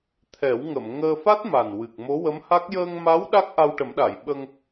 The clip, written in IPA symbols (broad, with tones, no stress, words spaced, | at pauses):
t̪ʰɛ˨˩˦wŋə˨˩˨m ŋəː˧fa˦˥t̚ma˨˩n wɨ˨˩k̚ mo˧˥wə˧˥mha˦˥k̚ jəː˧ŋma˧˥w ɗa˦˥k̚ʔa˧wʈə˨˩˦mɗa˨˩˨j ɓə˧ŋ